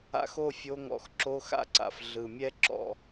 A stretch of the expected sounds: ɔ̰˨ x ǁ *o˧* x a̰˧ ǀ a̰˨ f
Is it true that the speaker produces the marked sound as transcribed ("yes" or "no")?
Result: yes